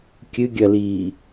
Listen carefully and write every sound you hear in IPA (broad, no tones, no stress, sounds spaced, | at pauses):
kʲ ɨ ɡʲ ɐ l iː